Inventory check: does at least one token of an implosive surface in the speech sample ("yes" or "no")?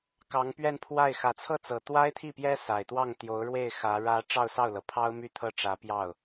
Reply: no